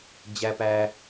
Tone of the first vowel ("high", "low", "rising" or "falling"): high